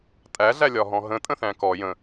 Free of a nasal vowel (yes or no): no